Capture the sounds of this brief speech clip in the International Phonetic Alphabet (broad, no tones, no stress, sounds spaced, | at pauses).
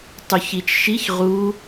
tˤ u ç i t͡ʃ ʃ i ç ʁ u